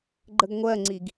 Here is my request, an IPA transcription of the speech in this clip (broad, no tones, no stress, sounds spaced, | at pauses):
ɡ͡ǃ ə ɡ ŋʷ ɜ ŋ͡ǀ i ɡ